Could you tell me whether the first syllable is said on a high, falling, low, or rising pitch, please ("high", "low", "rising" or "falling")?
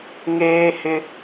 high